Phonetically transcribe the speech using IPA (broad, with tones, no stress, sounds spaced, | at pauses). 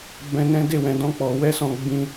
b ɛ̃˧ n ɛ̃˦ d e˦˨ w ɛ̃˧ d ɔ̃˦ k͡p ɔ˧ w ɛ˦ s ɔ̃˧ ɡ͡b ĩ˦